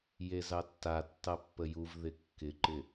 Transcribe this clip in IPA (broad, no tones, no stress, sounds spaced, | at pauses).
j e z ɑ tː a tː ɑ pː ə j u v ð ɪ kː ɪ ǃ ɪ